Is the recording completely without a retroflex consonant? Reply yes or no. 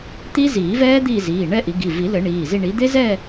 no